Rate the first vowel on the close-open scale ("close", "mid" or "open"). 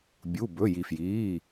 close